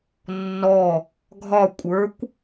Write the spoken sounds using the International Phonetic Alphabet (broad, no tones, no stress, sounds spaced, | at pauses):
nː ɔ | ɡʱ ɒ kʷʼ ə˞ kʷ